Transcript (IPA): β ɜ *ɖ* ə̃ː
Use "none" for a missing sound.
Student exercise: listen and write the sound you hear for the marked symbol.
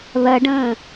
ɖ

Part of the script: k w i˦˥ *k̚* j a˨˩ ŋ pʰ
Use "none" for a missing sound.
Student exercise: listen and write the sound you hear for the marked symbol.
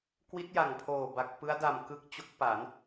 t̚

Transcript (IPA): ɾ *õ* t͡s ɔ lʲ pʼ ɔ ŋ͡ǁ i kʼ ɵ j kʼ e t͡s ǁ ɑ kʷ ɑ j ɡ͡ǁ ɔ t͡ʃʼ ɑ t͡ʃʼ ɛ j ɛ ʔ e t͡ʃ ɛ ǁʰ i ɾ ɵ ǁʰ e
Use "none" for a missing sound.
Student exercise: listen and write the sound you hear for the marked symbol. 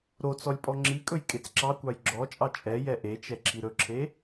o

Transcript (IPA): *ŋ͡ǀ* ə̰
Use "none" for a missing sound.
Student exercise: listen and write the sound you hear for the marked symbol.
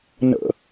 n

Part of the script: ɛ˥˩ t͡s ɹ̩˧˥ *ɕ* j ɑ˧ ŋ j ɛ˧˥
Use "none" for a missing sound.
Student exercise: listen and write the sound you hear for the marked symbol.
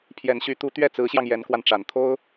ɕ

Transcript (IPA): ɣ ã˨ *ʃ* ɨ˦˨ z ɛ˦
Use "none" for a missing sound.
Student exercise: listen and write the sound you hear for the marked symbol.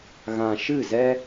ʃ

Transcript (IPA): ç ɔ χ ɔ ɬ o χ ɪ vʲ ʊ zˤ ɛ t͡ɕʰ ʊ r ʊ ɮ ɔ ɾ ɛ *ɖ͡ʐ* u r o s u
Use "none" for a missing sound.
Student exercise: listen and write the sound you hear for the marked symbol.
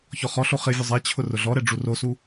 ɖ͡ʐ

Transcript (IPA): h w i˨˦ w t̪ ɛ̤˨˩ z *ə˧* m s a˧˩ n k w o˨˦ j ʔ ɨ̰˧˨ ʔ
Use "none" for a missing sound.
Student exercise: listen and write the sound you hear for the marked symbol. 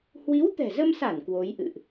ə˧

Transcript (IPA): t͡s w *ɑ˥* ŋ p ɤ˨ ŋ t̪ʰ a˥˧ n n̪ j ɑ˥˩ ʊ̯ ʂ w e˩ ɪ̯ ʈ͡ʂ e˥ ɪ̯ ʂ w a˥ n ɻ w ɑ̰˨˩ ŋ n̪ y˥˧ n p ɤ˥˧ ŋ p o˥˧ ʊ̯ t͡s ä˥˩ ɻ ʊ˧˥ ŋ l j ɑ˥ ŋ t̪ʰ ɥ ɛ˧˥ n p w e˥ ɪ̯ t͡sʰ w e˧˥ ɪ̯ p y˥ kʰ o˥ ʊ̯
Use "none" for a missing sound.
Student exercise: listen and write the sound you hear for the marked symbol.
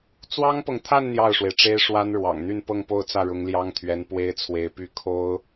ɑ˥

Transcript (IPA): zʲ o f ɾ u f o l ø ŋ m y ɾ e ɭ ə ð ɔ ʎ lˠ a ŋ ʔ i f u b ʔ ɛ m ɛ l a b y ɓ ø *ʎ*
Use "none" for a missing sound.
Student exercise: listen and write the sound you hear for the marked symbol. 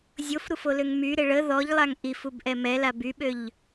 ʎ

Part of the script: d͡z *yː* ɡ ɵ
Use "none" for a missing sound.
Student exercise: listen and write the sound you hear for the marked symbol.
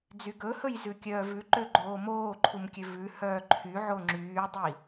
y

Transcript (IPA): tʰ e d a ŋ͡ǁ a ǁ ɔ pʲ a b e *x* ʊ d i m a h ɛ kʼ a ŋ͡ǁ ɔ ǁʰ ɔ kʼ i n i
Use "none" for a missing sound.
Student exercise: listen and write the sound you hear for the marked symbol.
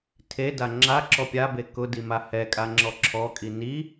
k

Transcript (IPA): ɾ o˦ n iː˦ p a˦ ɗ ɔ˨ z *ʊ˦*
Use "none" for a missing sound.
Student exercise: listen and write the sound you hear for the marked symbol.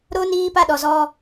ɔ˦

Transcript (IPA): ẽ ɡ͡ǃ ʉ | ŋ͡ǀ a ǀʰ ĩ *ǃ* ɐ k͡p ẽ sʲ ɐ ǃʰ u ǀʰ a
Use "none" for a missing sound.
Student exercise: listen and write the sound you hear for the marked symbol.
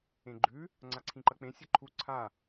ǃ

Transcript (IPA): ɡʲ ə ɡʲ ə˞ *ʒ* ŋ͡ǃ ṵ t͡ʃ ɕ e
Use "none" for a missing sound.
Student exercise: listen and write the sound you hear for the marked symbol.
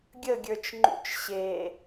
t͡ʃ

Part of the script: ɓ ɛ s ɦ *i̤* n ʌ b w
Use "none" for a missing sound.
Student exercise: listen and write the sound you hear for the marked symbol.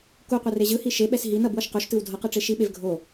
i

